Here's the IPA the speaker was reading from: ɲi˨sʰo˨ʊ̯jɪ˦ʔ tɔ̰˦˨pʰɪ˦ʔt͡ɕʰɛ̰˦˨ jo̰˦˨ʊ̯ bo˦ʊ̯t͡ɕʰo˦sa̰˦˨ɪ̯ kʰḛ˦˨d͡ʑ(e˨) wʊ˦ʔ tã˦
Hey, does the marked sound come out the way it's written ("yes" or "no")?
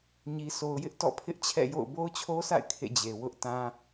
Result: yes